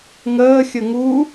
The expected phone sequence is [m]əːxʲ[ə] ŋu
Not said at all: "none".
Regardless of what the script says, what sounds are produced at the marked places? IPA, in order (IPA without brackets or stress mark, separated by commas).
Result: ŋ, ə